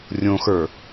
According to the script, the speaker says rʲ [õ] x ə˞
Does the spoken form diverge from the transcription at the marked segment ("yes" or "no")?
no